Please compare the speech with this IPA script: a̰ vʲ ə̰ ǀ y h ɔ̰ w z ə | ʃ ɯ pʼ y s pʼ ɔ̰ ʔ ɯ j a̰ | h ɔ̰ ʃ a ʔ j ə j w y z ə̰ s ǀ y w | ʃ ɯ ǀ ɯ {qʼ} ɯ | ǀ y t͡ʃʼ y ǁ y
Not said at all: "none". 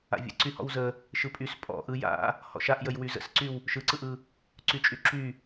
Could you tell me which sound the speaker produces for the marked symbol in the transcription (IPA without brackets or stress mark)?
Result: ʔ